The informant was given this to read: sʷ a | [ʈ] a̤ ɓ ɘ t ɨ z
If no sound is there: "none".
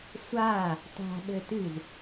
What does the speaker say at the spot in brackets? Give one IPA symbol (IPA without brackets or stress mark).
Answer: t